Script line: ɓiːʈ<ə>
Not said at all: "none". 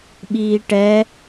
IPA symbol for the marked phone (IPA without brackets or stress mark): ɛ